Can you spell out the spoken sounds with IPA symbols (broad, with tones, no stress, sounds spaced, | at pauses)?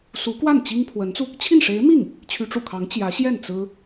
s u˧˥ k w a˥˩ n t͡ɕ i˥ ŋ pʰ w ə˧˥ n t͡s u˧ | t͡ɕʰ i˥˩ n ʂ e˧˥ ɪ̯ m i˥˩ ŋ | t͡ɕʰ y˧˥ ʈ͡ʂ ṵ˨˩ kʰ ɑ˧˥ ŋ t͡ɕ j ä˧˥ ɕ j ɛ˥˩ n t͡s ɹ̩˥